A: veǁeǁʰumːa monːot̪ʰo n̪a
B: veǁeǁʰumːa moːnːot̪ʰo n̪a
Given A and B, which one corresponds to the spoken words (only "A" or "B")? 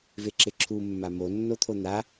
A